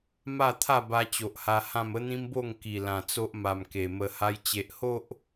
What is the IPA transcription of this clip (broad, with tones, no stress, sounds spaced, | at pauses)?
m a˥˧ t̪ʰ a˥˧ b a˧ t͡ɕ o˨ ʔ h a˧ h ã˥˧ m ə˦ n̪ ĩ˦ m b o˥˧ ŋ k i˨˩ l ã˨˩ t͡s o˦ ʔ m a˨˩ m k e˨˩ m ə˧ h a˦ j t͡ɕ e˨ ʔ h o˦ ʔ